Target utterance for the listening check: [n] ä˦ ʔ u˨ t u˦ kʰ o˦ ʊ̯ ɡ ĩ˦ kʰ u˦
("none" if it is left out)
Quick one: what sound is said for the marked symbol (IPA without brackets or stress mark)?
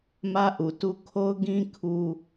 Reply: m